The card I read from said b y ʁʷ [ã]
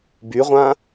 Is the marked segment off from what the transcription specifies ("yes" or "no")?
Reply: no